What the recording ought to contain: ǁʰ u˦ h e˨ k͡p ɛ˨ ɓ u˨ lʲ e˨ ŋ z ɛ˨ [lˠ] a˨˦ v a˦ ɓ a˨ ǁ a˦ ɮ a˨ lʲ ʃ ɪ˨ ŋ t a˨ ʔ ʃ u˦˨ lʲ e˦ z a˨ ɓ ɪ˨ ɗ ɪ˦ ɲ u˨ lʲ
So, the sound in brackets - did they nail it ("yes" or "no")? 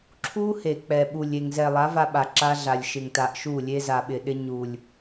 yes